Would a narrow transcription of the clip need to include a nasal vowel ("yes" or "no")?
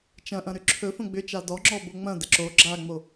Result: yes